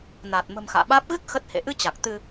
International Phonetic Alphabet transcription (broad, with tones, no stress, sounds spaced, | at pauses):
n aː˨˩ t̚ m ə̤˨˩ m x a̰ː˧˨ ɓ aː˦˥ p̚ ɣ ɨ˦˥ k̚ x ə˦˥ t̚ h ḛ˧˨ ʔ ɨ˧ t͡ɕ a˨˩ k̚ t̪ ɨ˧